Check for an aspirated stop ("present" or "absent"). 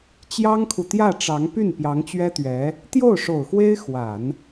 present